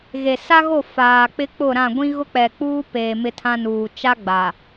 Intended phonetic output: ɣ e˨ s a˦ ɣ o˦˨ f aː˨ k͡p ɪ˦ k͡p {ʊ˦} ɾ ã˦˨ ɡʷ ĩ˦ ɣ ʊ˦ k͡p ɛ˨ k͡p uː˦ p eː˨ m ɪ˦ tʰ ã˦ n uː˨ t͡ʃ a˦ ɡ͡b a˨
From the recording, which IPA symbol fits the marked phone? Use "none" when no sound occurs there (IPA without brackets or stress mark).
ʊ˦˨